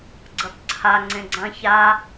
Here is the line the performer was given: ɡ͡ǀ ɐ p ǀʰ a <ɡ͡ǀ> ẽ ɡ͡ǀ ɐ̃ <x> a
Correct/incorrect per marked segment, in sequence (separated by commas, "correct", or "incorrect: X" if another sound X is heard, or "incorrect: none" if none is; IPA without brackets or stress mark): incorrect: ŋ͡ǀ, incorrect: ç